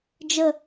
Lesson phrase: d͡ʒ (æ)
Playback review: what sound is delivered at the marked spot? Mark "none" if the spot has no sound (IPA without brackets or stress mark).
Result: ə